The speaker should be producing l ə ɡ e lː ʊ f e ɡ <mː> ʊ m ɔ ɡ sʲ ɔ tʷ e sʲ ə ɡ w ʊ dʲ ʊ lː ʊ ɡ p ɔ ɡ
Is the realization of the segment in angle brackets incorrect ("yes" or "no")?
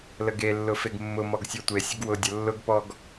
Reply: no